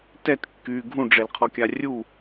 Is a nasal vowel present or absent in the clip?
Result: present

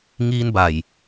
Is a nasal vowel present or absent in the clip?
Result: absent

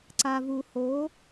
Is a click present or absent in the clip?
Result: present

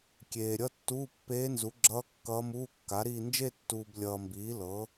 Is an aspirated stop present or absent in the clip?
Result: absent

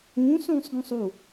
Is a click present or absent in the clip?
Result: absent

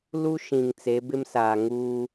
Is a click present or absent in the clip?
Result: absent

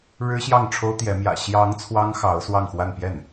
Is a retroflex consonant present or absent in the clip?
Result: present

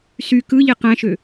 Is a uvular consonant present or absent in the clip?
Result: present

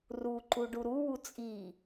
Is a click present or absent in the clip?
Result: present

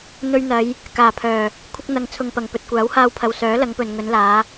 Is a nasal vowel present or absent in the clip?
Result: absent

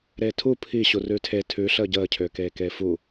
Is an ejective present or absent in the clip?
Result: absent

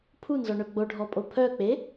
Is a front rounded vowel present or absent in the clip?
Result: present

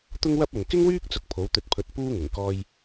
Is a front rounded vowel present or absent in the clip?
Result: present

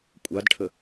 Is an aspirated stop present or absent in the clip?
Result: present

